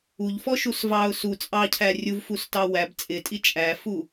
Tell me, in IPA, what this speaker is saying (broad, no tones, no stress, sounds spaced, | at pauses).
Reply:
u ʎ f ɔ ʃ u s v ɑ ʊ̯ s u t͡sʼ ɑ cʰ æ rʲ u v f u s t ɑ w æ b t͡sʼ ɪ tʼ i t͡ʃʼ æ f u